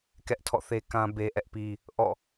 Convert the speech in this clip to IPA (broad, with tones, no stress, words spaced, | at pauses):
kɛ˦ʔtʰɔ̰˦˨θe˦ kã˦ be˦ʔɛ˦ʔpi˦ | ʔɔ̰˦˨